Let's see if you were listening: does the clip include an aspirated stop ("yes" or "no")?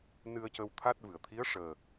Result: yes